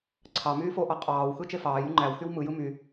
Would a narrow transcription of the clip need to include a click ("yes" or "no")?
yes